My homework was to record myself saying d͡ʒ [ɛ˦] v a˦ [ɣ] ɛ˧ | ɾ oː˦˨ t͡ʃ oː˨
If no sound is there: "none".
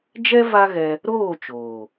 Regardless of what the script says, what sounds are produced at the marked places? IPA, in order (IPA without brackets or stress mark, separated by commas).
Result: ɛ˦, ɣ